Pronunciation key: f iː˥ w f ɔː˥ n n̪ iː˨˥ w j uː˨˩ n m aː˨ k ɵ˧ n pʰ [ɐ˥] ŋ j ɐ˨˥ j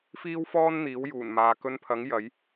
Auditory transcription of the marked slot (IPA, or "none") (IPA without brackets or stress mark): ɐ˨˥